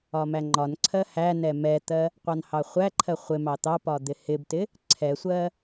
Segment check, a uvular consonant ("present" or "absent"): present